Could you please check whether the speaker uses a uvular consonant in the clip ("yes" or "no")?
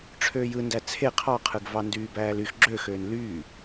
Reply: yes